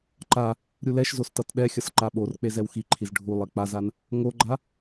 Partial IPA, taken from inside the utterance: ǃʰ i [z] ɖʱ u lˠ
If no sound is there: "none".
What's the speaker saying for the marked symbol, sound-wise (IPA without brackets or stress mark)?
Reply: z